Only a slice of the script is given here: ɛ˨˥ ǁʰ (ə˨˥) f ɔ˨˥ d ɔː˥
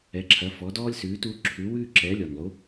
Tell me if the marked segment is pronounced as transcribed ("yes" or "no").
no